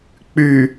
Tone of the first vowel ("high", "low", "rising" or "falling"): low